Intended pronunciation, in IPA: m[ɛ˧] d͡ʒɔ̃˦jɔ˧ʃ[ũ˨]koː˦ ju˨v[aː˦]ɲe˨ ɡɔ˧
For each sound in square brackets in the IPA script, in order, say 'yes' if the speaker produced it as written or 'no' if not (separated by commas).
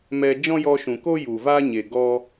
yes, yes, yes